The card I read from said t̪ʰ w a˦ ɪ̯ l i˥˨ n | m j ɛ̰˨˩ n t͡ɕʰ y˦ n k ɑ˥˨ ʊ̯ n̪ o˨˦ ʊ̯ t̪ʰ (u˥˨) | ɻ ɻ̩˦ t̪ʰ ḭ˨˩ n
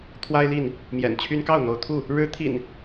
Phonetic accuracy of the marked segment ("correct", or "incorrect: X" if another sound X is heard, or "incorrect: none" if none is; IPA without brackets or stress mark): correct